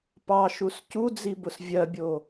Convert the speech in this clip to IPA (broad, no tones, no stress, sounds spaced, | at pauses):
p ɑ ʃ u s c u d͡z i b ʊ s vʲ ɜ bʲ o